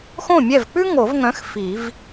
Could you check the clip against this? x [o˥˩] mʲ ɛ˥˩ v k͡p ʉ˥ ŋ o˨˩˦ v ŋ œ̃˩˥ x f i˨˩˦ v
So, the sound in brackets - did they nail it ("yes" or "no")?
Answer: no